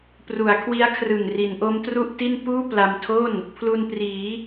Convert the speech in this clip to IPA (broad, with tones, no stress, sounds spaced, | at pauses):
p r u˩˦ a̯ kʰ w i˦˥ a̯ kʰ r ɯ˨˩ ŋ r i˩˦ n ʔ o˦˥ m t r u˥˩ ʔ t i˥˩ n p uː˥˩ p l a˧ m tʰ o˥˩ n | pʰ l u˧ n p r iː˩˦